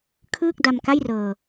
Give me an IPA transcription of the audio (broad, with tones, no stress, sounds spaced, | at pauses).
kʰ ɯː˥˩ k̚ d a˧ m k a˥˩ j r ɤː˧